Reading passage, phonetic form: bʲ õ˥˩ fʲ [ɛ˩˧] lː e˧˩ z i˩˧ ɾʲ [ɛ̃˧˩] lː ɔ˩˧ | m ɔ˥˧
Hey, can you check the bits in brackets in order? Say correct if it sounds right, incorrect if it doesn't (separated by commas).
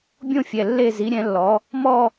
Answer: incorrect, incorrect